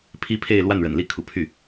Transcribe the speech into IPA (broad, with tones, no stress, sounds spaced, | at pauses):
pʰ i˥ pʰ e˥˧ ɪ̯ l w a˥˩ n ɻ ə̰˨˩ n l i˥˩ kʰ ṵ˨˩ pʰ y˥˩